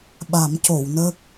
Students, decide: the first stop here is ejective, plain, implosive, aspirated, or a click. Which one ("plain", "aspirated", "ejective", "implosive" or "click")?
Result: implosive